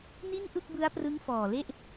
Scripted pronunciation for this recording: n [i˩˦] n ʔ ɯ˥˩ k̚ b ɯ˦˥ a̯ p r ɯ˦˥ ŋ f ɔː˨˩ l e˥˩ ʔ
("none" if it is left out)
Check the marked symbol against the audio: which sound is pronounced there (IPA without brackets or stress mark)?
i˥˩